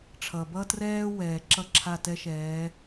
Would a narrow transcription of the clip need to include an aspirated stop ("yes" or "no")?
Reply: yes